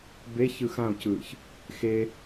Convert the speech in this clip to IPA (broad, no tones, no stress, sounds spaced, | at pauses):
b e ç ɯ x ã o̯ c ɯː ç | x e